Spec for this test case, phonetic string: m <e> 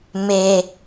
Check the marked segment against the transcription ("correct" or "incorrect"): correct